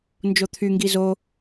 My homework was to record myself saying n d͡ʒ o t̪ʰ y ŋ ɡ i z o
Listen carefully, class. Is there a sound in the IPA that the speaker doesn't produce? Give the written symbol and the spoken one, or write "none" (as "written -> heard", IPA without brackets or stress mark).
none